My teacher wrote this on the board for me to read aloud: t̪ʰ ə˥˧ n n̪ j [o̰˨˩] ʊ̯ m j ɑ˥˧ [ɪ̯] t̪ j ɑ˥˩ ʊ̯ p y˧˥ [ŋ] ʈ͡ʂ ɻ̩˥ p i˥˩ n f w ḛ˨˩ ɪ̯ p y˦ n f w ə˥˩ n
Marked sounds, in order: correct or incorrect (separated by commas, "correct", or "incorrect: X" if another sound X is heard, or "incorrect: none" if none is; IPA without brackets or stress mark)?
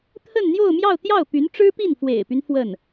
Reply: incorrect: o˥˧, incorrect: ʊ̯, incorrect: n